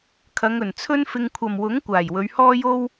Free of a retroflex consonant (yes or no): yes